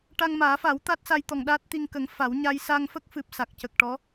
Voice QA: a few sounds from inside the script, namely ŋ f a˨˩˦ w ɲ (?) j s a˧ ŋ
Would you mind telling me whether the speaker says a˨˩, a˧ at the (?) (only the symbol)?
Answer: a˧